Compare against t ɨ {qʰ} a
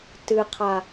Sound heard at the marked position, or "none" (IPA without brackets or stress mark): qʰ